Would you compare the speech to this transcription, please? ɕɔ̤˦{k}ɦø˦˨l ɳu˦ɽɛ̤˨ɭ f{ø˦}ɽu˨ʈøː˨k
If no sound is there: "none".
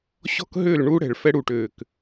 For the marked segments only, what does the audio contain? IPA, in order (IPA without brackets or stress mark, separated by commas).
k, ɛ˦